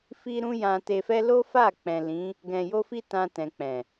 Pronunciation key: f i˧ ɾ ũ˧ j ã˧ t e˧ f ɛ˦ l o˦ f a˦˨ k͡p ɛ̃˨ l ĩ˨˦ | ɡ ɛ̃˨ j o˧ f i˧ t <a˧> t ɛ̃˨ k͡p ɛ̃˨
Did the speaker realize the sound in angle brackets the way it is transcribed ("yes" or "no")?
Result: no